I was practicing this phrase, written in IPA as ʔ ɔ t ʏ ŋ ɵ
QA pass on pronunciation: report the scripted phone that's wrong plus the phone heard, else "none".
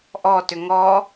ɵ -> ɔ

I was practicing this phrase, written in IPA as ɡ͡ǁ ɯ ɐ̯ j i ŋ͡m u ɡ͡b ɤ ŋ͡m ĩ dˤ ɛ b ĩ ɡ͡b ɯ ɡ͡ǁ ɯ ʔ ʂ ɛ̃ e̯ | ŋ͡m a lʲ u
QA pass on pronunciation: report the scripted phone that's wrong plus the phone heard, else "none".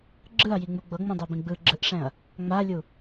e̯ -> ɐ̯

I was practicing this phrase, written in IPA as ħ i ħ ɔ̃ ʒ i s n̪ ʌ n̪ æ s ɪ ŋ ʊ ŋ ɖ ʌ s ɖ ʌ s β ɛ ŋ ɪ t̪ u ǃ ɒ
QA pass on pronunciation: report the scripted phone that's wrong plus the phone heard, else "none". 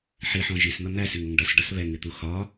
ǃ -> x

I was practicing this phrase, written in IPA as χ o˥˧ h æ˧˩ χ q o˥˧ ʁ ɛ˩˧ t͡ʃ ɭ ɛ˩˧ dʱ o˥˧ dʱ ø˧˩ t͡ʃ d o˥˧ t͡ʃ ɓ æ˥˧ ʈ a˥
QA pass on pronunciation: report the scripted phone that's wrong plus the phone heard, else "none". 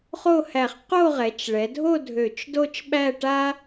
none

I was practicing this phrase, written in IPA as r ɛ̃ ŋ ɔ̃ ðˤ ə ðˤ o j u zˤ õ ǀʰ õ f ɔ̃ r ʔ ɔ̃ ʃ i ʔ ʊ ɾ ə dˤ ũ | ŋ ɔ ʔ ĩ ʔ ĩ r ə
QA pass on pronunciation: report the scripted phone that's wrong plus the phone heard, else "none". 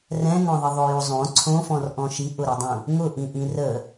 ɔ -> ʊ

